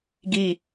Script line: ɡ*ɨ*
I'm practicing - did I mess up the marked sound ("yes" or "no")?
yes